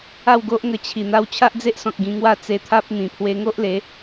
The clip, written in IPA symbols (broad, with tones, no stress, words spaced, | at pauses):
a˥˧wɡo˦ʔŋə˧ t͡ɕʰi˨˩ n̪a˧wt͡ɕʰa˦ʔd͡ze˦ʔsɔ̃˨k̚ ɡĩ˧ŋwa˥˧t͡se˧t̪ʰa˦p̚ n̪ĩ˨˩ pʰwe˧ŋo˦ʔle˨˦